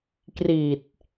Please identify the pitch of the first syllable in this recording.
low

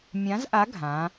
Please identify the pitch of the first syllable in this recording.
rising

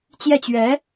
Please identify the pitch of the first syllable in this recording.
falling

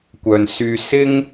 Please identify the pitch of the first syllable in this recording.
low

